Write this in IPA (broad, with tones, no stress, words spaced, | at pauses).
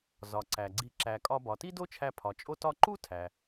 zɒ˩ǀæ˩ɡ͡ǀi˧ ǁæ˩kʼɒ˧ bɒ˩ti˥do˥t͡ʃʰæ˧ pʰɒ˩t͡ʃʼo˥tɒ˥ ǃu˥ tʰæ˩